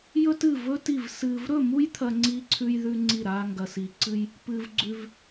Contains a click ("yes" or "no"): yes